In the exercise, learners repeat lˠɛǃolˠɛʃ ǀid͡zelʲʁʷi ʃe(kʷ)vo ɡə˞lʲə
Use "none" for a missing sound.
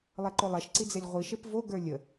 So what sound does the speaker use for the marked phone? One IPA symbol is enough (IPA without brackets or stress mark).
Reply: p